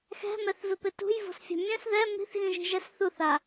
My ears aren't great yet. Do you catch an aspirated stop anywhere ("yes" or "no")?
no